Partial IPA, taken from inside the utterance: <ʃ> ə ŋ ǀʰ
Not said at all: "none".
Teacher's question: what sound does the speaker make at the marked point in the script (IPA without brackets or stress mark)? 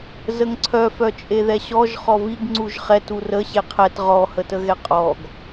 z